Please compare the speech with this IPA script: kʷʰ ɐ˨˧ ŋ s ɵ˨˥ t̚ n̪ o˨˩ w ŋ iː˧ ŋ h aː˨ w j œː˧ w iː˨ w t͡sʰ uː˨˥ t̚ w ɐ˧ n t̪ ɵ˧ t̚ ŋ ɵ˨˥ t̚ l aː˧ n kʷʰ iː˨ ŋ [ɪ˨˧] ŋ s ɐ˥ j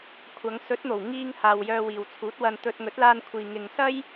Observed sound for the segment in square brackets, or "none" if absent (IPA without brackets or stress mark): ɪ˨